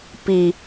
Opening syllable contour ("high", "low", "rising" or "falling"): low